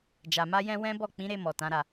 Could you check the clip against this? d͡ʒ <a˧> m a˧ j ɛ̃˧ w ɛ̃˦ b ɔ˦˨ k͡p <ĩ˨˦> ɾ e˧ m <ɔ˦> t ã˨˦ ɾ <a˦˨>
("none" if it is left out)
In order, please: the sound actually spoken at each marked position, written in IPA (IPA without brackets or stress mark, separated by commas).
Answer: a˨, ĩ˨˦, ɔ˨, a˦˨